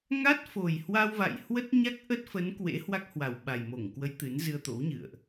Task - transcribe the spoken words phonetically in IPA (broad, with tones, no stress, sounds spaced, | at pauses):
ŋ a˦˥ t̚ f o˨˩ j h w a˧ w v a̰˧˨ j h w ə˦˥ t̚ ɲ a˦˥ k̚ ʔ ə˦˥ t̚ f ə˨˦ n k w ḛ˧˥ h w a˦˥ k̚ h w a˨˩ w ɓ a˨˩ j m o˧˩ ŋ k w ə˨˦ j t̪ ɨ˨˦ n z ɨ˧ ə̯ t̪ o̰˧˥ w ɲ ɨ̰˧˨ ə̯ ʔ